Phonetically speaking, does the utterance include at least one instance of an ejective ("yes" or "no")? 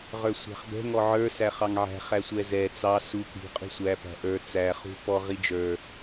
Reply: yes